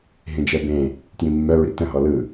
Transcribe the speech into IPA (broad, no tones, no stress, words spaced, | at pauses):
ɦĩd͡ʒɛbẽ | tjĩmːœ ɹḭtə̃ ɦɔlɯ